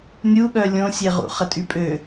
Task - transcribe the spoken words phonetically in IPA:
nʲuɠœ lʲõsʲeʁṵ χətʼypʼø

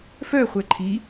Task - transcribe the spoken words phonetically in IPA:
fœ χʷɛǃʰi

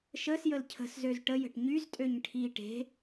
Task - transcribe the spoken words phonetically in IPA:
ʃəsjəl cʰə̤szøz ʈəjə̤ʈ ɲyztʼøɲ ʈʰi ʈe̤

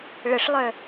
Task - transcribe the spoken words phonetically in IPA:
ɭəʂlˠœ

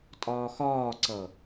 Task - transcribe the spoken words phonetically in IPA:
tʼɒːxɒːǀʌ

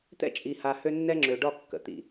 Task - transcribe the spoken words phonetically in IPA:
t̪ɛ̰˦t͡ʃʼi˨ ha˨ hø˦nːɛ˦ ŋ͡ǁø˨ɖɒ˦˨kːə̰˨ t̪ḭ˨

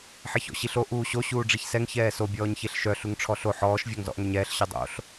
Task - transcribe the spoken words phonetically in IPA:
ħeçɔ̰ɕiɬo ʔuːɕo ɕuːɖ͡ʐiçsɛŋ çɛːso bʲɔːɲçeɬʃœ ɬuŋʈ͡ʂʰɔɬo ħɔːʃ vʲɔŋzɔ̰ʔŋøɲɛːɬ ɕœdˤo̰ɬ

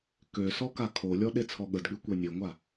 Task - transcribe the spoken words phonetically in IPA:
kø sɔkakʰolʲɔ ɗet͡sʰɔɠədɠy kʷenʲeŋʷa

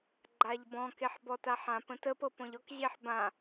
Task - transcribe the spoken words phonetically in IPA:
ɡ͡ǃaʎbɔ̃keħ bɔtaħãpə̃t əp ɤpɔ̃ʎɔkʑeħ bã

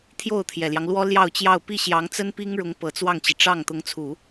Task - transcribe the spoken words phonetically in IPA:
t̪ʰjo˥˩ʊ̯t̪ʰjɛ˨˩ljɑ˦ŋ lwɔ˥ljɑ˥˧ʊ̯t͡ɕjɑ˥˧ʊ̯ pi˥˩ɕjɑ˧˥ŋt͡sə˥n pi˥ŋɻʊ˧˥ŋpɤ˨˩ t͡swɑ˥˩ŋt͡ɕi˩ ʈ͡ʂɑ˥˩ŋ t̪ʊ˧˥ŋt͡sʰu˨˩˦

